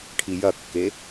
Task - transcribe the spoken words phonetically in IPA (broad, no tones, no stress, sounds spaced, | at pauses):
ʈʰ i j ɐ kː e